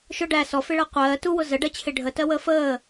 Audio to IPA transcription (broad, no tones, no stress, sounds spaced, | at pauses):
ʃ ʊ ɖ æ s ɔ f ɪ ɭ ɜ qʷ ɜː t u w ʊ z ə ɖ ɜ t͡ɕʰ ɪ ɖʱ ə t ɜ w əː f əː